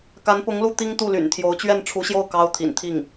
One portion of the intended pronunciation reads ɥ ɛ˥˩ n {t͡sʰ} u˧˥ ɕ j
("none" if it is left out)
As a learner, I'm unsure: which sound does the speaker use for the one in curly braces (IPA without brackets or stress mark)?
ʈ͡ʂʰ